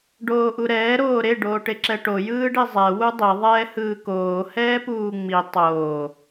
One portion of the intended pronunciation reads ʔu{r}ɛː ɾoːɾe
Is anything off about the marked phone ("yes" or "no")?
yes